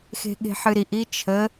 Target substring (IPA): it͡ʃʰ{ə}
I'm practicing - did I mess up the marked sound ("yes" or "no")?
no